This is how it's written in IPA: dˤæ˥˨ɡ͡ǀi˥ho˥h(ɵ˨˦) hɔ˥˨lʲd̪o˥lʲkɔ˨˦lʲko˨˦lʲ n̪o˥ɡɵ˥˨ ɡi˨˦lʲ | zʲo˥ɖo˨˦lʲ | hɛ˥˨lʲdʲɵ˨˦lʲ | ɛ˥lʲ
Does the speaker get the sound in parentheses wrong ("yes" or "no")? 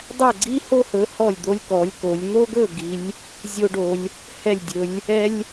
no